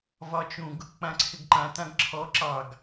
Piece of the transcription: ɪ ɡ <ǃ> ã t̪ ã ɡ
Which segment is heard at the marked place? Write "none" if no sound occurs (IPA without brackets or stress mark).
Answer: ǃ